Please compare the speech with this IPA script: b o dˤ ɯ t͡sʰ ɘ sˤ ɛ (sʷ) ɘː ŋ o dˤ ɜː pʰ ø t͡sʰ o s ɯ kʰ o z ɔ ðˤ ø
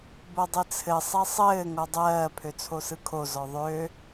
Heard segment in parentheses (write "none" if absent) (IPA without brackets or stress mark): sˤ